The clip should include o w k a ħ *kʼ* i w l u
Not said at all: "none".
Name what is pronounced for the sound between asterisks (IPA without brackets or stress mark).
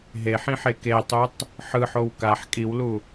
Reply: kʼ